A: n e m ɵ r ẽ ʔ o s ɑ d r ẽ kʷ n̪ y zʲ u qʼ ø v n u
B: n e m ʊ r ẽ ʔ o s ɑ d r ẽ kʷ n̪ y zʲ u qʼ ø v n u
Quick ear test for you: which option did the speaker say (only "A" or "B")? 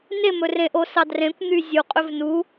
A